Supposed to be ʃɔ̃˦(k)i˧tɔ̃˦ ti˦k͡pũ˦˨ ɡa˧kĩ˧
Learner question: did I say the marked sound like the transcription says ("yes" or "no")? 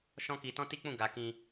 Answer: yes